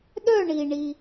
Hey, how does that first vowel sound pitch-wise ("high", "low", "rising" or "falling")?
falling